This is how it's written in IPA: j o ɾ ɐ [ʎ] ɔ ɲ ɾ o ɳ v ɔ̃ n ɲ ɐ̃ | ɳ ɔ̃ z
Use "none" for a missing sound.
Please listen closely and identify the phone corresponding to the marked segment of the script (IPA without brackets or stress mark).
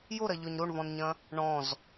ʎ